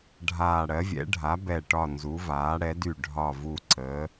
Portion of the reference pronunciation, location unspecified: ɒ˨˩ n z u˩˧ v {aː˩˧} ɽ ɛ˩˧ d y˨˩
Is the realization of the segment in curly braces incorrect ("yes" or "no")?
no